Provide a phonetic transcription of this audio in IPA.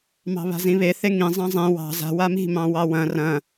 mɑ̤βa̤zĩβe θeŋĩ zˤɑ̃zˤẽ wɑ̤ za̤ wami̤mɑ̃ wɑwɐ̃ rɐ̃

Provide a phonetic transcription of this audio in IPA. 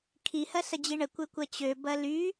kʰihɐ sɐd͡ʑiɳə kʷɘkʷɐt͡ɕø bɐly

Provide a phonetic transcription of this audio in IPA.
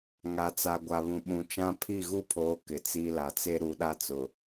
ŋa˨t͡sa˨ ɡʷa˨βũ˨ ɓũ˨t͡ʃã˦ pʰi˦˨ɣu˦pʰoː˨˦ kɪ˨t͡si˦ la˨t͡se˦ɾu˨˦ ɗa˦t͡sʊ˨

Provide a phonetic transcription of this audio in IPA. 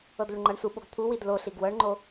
ɤdluɳŋ͡ǃʌɳsu ɓoɡt̪ʰu widlo ɬiɡwɤɳŋ͡ǃo

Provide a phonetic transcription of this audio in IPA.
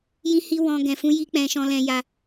jĩ˦hi˦ wɔ̃˧ ɡɛ̃˨fũ˧ ji˦k͡pɛ̃˧ ʃɔ̃˧lɛ̃˧ja˧

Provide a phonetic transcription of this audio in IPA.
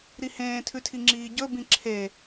ɾihẽː tʰʉtʰiŋ͡ǁiːɟɵ bĩǁʰe

